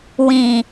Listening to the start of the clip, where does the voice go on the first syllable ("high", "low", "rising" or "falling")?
low